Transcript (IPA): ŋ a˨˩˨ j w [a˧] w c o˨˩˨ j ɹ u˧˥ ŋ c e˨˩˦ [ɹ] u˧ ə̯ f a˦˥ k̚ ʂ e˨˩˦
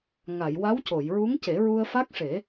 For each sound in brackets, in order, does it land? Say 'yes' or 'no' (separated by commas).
no, yes